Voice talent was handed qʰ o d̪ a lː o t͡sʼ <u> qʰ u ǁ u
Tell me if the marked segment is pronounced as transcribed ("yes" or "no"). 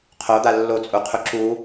yes